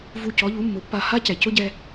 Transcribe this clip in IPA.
v u˧ c ɔ˩˥ ʎ u˩˥ mː ʊ˩˥ pː a˧ h a˥ c ɛ˩ c ʊ˥ ɟ ɛ˧

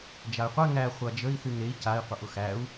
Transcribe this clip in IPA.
d͡ʒ a y̯ qʷ ɛ ŋ æ χʷ a d͡ʒ ə i̯ θ y ŋ ɾ e i̯ c a i̯ qʷ ə ʔ ʊ x æ u̯

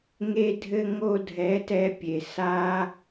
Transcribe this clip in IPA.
ŋ e˧ dʱ ɘ˧ ŋ o˧ dʱ ɛ˨˦ t ɛ˧ pʲ e˨ s a˦

